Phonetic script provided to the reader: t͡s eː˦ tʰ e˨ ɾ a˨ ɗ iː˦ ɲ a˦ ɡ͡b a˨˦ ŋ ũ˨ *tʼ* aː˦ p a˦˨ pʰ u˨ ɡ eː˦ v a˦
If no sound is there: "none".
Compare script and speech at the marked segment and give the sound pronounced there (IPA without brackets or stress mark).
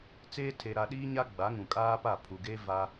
kʼ